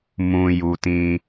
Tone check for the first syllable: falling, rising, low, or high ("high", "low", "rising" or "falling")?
low